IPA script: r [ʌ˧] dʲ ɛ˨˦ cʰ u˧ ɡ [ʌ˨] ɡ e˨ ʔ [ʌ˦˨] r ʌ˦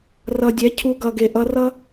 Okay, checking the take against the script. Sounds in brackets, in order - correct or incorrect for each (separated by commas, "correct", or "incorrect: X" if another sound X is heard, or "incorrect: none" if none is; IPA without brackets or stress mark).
incorrect: ʌ˨, correct, incorrect: ʌ˧